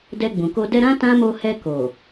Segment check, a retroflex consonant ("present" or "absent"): absent